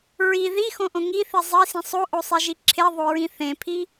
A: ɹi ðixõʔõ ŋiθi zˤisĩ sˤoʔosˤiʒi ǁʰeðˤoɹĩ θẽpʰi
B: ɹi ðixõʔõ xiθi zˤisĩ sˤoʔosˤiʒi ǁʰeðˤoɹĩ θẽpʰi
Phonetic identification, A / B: A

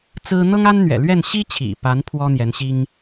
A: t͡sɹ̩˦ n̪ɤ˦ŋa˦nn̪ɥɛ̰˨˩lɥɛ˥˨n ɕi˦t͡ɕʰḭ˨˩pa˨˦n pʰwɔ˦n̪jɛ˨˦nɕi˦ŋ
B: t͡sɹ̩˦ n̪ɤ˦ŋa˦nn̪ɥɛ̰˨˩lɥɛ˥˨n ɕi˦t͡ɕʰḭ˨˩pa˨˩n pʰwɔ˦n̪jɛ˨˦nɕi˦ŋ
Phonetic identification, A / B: A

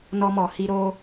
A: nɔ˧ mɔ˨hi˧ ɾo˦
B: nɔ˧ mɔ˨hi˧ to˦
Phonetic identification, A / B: A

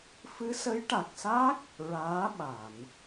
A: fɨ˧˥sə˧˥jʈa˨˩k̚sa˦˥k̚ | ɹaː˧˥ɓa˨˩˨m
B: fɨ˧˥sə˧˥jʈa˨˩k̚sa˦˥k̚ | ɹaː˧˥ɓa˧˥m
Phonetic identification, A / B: A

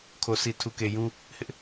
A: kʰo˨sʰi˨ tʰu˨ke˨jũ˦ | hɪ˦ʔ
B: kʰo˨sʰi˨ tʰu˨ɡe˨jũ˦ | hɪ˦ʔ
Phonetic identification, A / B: A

